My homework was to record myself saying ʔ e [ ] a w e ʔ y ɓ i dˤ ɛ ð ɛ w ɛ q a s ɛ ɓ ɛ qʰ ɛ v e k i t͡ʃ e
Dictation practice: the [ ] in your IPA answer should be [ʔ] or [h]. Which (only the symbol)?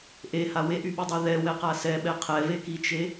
h